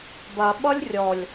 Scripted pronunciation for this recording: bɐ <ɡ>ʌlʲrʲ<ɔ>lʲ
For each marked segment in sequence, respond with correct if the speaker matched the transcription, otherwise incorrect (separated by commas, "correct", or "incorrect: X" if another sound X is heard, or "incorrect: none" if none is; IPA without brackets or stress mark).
incorrect: ɓ, correct